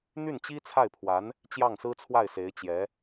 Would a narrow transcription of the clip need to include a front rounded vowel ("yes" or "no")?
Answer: yes